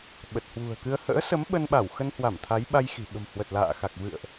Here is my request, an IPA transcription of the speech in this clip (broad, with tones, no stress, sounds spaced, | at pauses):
ɓ ə˨˩ t̚ h w ṳ˨˩ ə̯ k ɨ˧ ə̯ h ə̰ː˧˥ s ə˨˦ m ɓ ə˧ n ɓ a˧˩ w x ə˧ n h w a˧˩ m t̪ʰ a˨˦ j ɓ a˧ j x i̤˨˩ ɓ ə̤˨˩ m h w ə˨˩ t̚ l a̰ː˧˨ x a˨˩ k̚ v ɨ̰˧˨ ə̯ ʔ